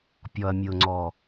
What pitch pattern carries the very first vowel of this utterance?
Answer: low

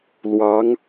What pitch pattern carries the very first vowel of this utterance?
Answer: rising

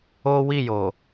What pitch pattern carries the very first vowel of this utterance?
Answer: high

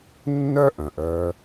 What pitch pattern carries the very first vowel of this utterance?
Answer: high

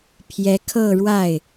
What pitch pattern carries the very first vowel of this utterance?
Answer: rising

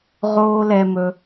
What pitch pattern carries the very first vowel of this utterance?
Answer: high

